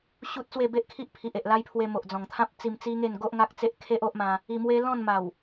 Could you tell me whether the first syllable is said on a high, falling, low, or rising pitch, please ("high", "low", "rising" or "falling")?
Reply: high